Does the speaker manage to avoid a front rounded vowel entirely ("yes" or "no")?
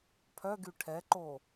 no